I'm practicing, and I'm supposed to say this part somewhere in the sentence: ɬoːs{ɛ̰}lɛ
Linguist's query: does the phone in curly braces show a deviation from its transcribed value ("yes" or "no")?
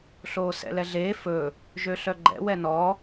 no